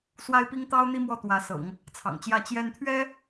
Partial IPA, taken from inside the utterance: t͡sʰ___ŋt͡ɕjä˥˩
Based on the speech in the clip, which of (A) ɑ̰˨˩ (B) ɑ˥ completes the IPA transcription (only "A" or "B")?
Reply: A